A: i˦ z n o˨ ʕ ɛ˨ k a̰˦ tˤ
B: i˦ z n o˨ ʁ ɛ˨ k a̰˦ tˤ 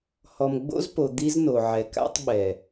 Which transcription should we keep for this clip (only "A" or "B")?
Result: A